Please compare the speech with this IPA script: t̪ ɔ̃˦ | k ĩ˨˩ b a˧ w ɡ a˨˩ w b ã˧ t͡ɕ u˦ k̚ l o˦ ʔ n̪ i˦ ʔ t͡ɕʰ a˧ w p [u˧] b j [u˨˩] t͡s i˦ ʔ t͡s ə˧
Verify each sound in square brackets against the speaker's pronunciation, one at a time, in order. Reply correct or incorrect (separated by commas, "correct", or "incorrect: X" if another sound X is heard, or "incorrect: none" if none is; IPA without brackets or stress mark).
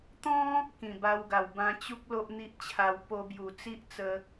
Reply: incorrect: o˧, correct